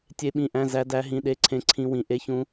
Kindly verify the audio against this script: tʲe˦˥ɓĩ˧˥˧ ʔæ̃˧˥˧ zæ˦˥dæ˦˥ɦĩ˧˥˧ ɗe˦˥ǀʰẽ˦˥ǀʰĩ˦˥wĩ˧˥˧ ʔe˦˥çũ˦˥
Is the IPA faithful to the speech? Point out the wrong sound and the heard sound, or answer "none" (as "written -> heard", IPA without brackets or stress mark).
none